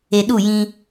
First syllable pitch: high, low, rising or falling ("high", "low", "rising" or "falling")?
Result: low